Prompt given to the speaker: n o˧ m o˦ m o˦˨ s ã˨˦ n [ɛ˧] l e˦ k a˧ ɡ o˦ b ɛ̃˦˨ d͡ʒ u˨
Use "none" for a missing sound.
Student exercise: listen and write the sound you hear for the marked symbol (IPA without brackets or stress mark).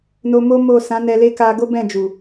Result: ɛ˧